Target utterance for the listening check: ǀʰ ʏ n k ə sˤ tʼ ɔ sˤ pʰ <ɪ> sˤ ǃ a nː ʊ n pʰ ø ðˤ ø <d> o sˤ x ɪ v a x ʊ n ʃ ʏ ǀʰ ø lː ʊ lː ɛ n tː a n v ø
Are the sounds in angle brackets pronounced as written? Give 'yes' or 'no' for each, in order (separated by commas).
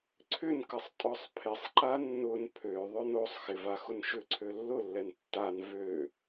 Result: yes, no